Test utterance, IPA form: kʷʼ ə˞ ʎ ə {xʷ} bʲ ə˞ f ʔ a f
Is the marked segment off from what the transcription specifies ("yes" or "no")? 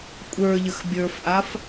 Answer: yes